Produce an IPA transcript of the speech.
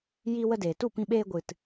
j i˧ w ə˧ d eː˨ t u˦˨ p ĩ˧ ɓ eː˧ ɡʷ ɨ˨ t

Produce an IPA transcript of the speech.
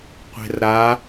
qʷ e̤ r ɾ a

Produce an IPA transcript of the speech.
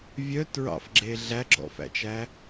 vʲ œ t ɹ ɑ̰ f ɡ͡ǁ e ɮ æ ɡ͡ǁ ɔ̰ f æ̰ t͡ʃ æ

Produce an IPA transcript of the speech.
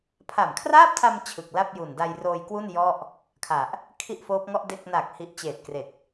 pʰ a˨˩ m kʰ r aː˥˩ p̚ tʰ a˧ m t͡ɕʰ ɯ˨˩ k̚ l a˥˩ p̚ j u˨˩ n d a˧ j r oː˧ j k w u˥˩ n j ɔ˥˩ ʔ | kʰ a˨˩ ʔ | kʰ i˥˩ ʔ f oː˦˥ p̚ ŋ ɔ˥˩ ʔ d e˥˩ k̚ n aː˨˩ k̚ h i˨˩ ʔ t͡ɕ eː˨˩ t̚ k r e˨˩ k̚

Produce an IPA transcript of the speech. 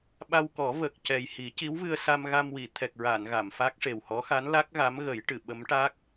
ɓ a˧ w k ɔ˨˩˦ v ə˨˩ k̚ c ɛ˨˩ j h i˨˩˦ c i˧˥ w v ɨ˧ ə̯ s a˧ m ɣ a˧ m w i˨˩˨ t̪ʰ ɛ˨˩ k̚ ɹ a˨˩˨ n ɣ a˨˩˨ m f a˦˥ k̚ ʂ e˨˩ w h ɔ˧˥ x a˧˥ n l a˦˥ k̚ ɣ a˧˥ m ɣ ə˨˩˦ j ʈ ɨ˨˩˨ ɓ ə˧˥ m ʈ a˦˥ k̚

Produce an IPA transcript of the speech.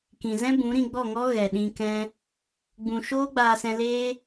k ĩ˨ z ɛ̃˦ b ũ˨˦ ɾ ĩ˧ ɡ͡b ɔ˦˨ ŋ ɔ˦ ɣ ɛ˨ ɗ ĩ˧ k ɛ̃˦ | ɡ͡b ũ˨ ʃ oː˦ ɡ͡b aː˧ s ɛ̃˧ l eː˦

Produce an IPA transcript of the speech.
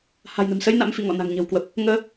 h a̤˨˩ j n ə̤˨˩ m s ə˧ j n a̰˧˥ m f ḭ˧˨ ŋ ɔ̰˧˨ n a̤˨˩ ŋ ɲ ə̤˨˩ w k w ə˨˩ p̚ | ŋ əː˨˦

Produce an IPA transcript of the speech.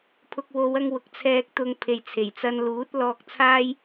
pʰ ʊ˨ k̚ w o˨˧ w ɐ˧ ŋ w ʊ˨ k̚ t͡sʰ ɛː˧ k̚ t̪ ʊ˧ ŋ pʰ e˨ j t͡sʰ e˨˩ j t͡s ɐ˧ n l uː˨˥ t̚ l ɔː˧ k̚ t͡sʰ aː˥ j

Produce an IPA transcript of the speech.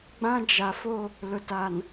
ɡ͡b ã˦ d͡ʒ a˨ f o˦˨ | l ʊ˨ t a˨ n

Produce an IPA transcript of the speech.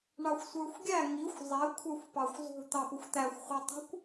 ɳ ɑ xʷ sʷ ə˞ xʷ ɡʲ æ ŋ i xʷ zˤ ɛ kʷʰ ə˞ xʷ p ɑ xʷ zˤ ṳ t̪ ɑ p ʊ xʷ t̪ æ xʷ χʷ ɛ tˤ ṳ kʷ

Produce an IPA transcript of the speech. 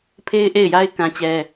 pʰ e˦ ɪ̯ ʔ e˦˨ ɪ̯ j a˦ ɪ̯ k ã˦ t͡ɕ ɛ˦

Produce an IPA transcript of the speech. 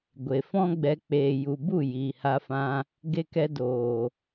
ɡʷ e˨ f ɔ̃˦ ɡ͡b ɛ˧ k͡p eː˨ j u˨ b u˦˨ j iː˨ h a˧ f ã˧ | ɡ e˧ k ɛ˧ d oː˨

